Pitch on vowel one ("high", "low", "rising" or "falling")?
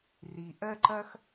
low